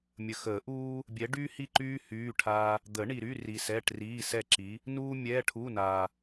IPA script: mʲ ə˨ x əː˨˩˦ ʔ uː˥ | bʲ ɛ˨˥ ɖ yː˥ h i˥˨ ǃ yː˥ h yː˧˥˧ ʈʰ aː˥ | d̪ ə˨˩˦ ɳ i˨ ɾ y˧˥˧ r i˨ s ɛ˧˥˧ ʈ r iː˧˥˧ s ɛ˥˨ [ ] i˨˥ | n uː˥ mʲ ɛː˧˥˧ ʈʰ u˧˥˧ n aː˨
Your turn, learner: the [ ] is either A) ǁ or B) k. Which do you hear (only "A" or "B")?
A